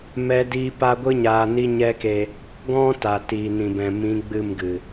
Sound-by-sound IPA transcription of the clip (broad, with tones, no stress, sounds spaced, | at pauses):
m ɛ˦ d iː˦ p a˦ ɡʷ ɨ˦ ɲ aː˧ n i˦ ɲ ɛ˦ k e˧ | ɡ ɔ̃˦ t a˨ t iː˨ n ĩ˨ b ɛ̃˨ m ĩ˨˦ ɡ͡b ɨ˦˨ m ɡ ɨ˨